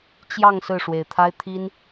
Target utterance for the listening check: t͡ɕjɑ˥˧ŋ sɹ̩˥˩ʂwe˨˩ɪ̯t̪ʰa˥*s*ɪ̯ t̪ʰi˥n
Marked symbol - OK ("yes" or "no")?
no